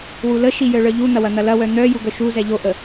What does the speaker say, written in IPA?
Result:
wuləʃi jœɭœʎun̪ɐ wɐn̪ɐlɐwœ n̪œ juɡœʃuzɛ ʎoʔə

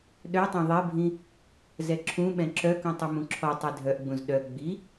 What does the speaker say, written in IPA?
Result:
ɗœtˤɛ̃ ðˤɛbʱĩ | zɛǁʰũɓɛ̃ ǁœkũ tˤɵmũǁʰɔtˤe dʱœʔɡ͡bũz ɗœ ɡ͡bi

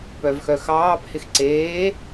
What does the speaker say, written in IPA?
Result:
pœvxœxɑːphɪx ǀeː

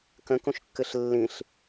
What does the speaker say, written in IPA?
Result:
kə̃kũʃkːɨɬ lːĩɬ

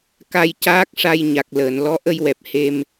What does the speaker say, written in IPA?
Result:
ka˧jcaː˦˥k̚ ʂa˧j ɲa˨˩k̚ləː˨˩˨n lɔ˧˥ʔə˧jwɛ˨˩p̚ he˧m

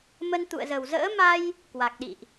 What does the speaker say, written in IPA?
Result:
mə˧nt̪ṵ˧˨ə̯zə˨˩w zə̰ː˧˥ma˧j | kwa˨˩k̚ɗḭ˧˨ʔ

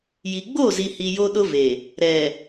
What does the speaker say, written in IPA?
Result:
ji˨ɡ͡bo˦˨zi˨hi˨ jo˦ɗʊ˦ve˨ | ɾɛ˨

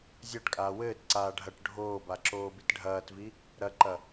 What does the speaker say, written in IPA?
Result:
zʲaʈkʼaː wɘːtǀaː ɖʱɐʈ ɖʱoːba ǁoːbitɖʱɐːtvi | ɾɐǃɐ

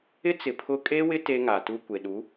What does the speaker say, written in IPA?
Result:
ɪ˦t͡sɪ˨ pʰʊ˦ kʼe˦wɪ˦ te˦ŋa˨tu˦ kʷe˨ɗu˨˦

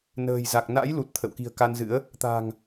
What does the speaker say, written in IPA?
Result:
nə̤ː˨˩jza˨˩k̚ na̰˧˥jlu˨˩t̚ t̪ʰə̰˧˨wki̤˨˩ə̯ka˧nzɨ̰˧˥ə̯ | t̪a̤˨˩ŋ

